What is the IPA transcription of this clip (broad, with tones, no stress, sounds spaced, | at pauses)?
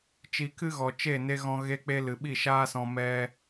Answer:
t͡ʃ i˧ k ɨ˦ ɣ ɔ˨ t͡ʃ e˦˨ n e˧ ɣ ɔ̃˧ ɣ e˧ k͡p e˧ l ɨ˨ ɓ i˦˨ ʃ aː˦ s ɔ̃˧ m ɛ˧